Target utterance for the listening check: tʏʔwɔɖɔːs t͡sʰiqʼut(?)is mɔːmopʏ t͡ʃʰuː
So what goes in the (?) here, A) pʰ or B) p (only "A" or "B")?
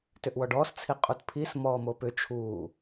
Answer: A